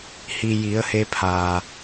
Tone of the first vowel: low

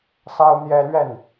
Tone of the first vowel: high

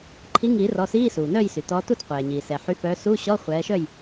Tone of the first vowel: rising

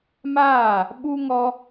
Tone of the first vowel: falling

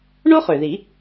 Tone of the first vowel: high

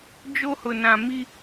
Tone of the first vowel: high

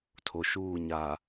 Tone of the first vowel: low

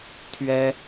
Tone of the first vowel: high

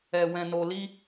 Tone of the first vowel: low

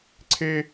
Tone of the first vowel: high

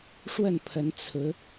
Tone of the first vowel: falling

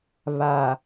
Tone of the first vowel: low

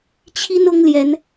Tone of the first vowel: high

